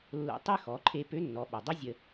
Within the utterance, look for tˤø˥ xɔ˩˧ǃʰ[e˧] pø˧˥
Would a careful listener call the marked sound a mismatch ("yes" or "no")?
no